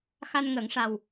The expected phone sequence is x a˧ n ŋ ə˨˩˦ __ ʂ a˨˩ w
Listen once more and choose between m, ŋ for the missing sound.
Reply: ŋ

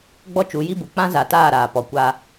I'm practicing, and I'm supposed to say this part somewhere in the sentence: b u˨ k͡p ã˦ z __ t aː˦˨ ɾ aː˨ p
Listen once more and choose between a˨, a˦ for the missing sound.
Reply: a˨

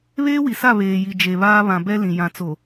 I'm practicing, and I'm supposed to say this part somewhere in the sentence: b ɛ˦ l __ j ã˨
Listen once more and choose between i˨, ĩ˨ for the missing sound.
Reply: ĩ˨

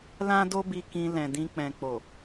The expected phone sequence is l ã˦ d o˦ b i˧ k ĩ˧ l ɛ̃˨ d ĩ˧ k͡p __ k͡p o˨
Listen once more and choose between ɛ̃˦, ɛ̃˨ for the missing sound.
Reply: ɛ̃˨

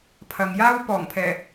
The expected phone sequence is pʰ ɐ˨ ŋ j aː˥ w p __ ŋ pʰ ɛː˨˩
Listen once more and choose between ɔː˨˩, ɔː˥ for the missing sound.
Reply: ɔː˨˩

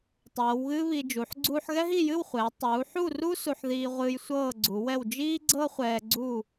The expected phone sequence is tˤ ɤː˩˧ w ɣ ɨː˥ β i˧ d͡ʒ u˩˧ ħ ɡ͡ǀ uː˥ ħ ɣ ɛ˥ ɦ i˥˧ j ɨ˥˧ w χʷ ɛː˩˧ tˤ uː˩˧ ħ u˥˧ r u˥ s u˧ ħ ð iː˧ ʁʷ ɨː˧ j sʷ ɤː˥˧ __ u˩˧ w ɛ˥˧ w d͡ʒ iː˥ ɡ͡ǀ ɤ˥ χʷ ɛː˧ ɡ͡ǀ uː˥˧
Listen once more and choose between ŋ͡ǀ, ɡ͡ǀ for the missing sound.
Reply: ɡ͡ǀ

